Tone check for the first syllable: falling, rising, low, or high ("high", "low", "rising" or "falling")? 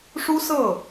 high